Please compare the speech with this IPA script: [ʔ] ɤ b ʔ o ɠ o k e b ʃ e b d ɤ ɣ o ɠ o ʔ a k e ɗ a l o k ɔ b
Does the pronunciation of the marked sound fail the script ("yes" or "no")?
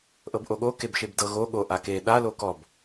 no